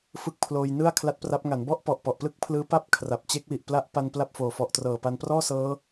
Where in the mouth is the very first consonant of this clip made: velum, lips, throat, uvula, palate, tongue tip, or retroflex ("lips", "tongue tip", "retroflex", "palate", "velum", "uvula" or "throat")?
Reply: lips